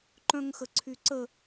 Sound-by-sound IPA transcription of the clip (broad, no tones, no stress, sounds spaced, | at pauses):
ǃ œ̃ ŋ x ə ǀʰ y ǀ ə